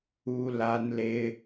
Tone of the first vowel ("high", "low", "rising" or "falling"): high